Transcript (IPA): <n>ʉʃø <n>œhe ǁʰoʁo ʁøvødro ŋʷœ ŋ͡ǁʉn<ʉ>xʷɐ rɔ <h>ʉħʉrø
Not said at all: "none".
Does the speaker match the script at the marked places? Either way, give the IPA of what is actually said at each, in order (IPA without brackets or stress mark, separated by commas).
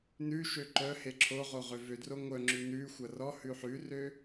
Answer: n, ǃ, ʉ, h